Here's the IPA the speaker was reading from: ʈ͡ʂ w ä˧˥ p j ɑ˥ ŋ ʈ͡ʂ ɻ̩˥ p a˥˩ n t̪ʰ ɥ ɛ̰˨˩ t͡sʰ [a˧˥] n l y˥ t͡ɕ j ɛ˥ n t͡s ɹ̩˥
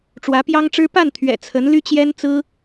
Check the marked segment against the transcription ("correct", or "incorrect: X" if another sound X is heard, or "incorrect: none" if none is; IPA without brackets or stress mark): incorrect: ə˧˥